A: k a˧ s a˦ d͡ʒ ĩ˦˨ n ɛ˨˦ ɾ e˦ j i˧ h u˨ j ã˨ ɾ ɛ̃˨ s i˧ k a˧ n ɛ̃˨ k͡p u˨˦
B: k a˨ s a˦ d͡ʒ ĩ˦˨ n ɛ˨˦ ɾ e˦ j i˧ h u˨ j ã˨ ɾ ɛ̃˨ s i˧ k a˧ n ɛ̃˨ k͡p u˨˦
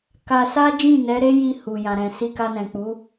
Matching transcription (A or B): A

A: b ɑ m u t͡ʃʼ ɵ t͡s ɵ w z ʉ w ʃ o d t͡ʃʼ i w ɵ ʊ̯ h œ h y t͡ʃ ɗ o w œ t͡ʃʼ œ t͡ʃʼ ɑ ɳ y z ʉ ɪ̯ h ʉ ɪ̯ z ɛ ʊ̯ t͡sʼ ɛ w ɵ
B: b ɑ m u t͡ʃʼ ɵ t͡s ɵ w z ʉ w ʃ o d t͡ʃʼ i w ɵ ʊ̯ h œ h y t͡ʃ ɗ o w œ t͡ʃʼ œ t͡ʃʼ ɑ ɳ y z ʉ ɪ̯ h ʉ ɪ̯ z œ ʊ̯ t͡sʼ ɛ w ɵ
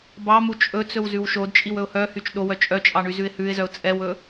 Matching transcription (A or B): B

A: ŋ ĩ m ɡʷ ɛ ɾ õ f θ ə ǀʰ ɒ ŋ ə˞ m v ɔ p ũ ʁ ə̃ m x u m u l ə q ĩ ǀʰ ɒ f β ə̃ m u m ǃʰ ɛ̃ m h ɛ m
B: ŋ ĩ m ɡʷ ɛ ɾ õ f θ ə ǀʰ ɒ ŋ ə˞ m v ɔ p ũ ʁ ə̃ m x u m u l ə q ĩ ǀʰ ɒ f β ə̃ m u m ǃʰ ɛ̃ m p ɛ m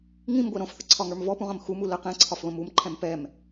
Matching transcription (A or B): B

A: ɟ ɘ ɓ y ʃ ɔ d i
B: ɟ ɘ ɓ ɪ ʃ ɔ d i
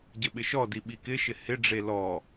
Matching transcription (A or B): B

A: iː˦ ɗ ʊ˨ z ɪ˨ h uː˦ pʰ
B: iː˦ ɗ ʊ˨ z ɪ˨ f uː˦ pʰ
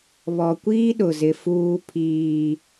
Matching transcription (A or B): B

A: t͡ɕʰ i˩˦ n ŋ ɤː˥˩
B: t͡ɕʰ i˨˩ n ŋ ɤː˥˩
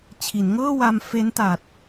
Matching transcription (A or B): A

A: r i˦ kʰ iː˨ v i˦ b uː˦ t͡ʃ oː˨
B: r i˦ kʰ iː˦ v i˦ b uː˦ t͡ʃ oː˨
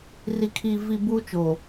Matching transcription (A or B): B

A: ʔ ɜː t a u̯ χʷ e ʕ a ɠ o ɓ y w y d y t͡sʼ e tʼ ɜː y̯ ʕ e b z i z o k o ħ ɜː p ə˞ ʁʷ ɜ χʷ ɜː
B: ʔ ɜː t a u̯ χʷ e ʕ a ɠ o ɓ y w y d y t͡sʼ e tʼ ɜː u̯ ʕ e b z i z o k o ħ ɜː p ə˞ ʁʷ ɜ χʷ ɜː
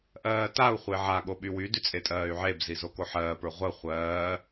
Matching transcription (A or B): A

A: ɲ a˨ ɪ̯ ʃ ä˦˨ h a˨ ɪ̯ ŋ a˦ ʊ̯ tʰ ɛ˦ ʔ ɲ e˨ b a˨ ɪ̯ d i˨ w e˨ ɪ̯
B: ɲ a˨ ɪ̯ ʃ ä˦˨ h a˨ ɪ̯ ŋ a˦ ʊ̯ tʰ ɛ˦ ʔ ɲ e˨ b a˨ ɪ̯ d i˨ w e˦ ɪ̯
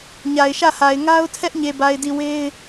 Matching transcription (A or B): B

